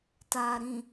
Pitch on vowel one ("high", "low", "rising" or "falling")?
low